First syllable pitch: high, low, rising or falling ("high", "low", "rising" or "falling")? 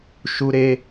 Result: high